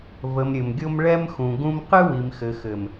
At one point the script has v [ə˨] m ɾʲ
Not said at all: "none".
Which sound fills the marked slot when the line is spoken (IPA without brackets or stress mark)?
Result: ə˨